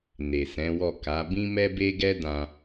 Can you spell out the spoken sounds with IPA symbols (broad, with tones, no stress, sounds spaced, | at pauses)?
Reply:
n e˨ s ɛ̃˨˦ w ɔ˦˨ k a˨˦ b ĩ˦ m ɛ˦ b e˦ ɡ ɛ˦ d ã˧